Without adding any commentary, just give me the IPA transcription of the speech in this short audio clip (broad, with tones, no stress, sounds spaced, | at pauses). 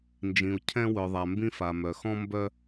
n d͡ʒ ĩ˩ u̯ cʰ ɛ̃˧ w œ˩ ðˤ a˩ m b ĩ˧ f a˩ m œ˩ x ɔ̃˧ m b œ˧